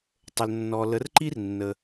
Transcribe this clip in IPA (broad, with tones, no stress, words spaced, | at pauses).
tˤə˩l nːɔ˩lə˩˥r ǃi˥r nːə˩